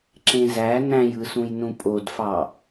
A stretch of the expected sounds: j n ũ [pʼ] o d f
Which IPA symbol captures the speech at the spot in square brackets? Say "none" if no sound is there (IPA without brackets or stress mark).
pʼ